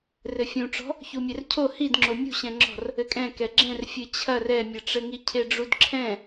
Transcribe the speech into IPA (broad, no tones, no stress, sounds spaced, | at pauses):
r ɘ fʲ ũ ʈ͡ʂ ɔ̤ | ç u mʲ ɛ r cʰ o h i d ŋ͡ǁ o mʲ ṳ ɕ ɛ̃ ŋ͡ǁ ɔ̤ r | ɘ kʼ ɛ̃ k ɛ ɡ͡ǁ ɛ̃ r fʲ ɨ t͡ɕʰ ɐ r ɛ mʲ ɘ ʈ͡ʂ ɘ ŋ i cʰ e ɖ͡ʐ u d ǁʰ ɛ̃